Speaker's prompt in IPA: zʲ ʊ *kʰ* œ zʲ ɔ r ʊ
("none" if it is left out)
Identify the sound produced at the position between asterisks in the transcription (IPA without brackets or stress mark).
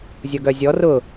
ɡ